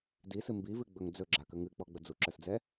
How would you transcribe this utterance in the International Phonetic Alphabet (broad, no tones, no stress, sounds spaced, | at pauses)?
d i s ɨ m b i v ɨ ɡ͡b ɵ ŋ d͡z ɵ ɡ͡ǁ a k ə ŋ ɨ k͡p ɔ ɡ͡b ə d͡z u ǁ ə˞ s d͡z ɛ